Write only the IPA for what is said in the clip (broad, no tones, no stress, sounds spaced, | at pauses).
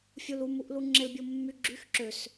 fʲ u l u m u ʔ l u ŋ͡ǁ e l bʲ o mː y ɡ͡ǁ y x ǁ ø s